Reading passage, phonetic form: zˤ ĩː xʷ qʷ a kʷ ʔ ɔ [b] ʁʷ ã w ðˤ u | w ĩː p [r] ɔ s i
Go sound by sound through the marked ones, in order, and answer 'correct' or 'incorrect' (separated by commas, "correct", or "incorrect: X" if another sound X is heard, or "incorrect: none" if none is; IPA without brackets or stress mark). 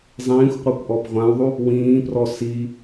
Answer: correct, correct